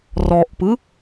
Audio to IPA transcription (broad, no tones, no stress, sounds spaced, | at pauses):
r ɔ ʔ p ɯ